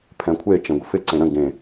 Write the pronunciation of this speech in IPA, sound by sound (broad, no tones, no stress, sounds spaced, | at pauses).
pʰ ɛ̃ kʷʰ e t͡ʃ ẽ ɡʷ ə f ɪ ǀ ẽ ɾ ə̃ ɡ ẽ